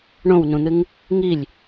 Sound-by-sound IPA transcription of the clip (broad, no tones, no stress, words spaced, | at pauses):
ɳõwnũn̪ɨŋ | ŋilʲ